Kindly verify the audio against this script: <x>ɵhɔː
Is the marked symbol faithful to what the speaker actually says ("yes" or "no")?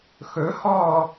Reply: yes